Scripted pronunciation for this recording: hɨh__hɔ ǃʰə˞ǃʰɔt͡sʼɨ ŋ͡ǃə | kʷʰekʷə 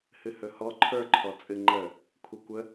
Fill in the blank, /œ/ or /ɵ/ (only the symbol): ɵ